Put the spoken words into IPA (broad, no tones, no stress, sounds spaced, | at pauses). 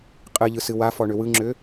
qʼ ɨ ʎ ɯ s ɨ w a f ɔ ɳ ʏ w ɯ ŋ͡ǁ ʏ